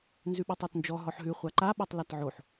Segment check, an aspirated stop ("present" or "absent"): absent